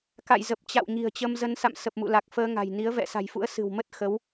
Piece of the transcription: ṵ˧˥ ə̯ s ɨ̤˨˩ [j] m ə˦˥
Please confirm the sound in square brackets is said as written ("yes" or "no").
no